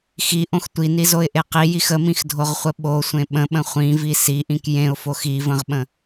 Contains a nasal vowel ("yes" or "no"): yes